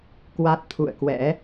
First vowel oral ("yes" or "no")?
yes